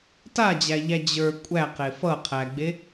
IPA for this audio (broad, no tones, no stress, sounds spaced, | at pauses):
t a d͡ʑ æ ʎ æ d͡ʑ ə˞ kʷʼ æ q e f ʌ qʰ æ ɡ͡b e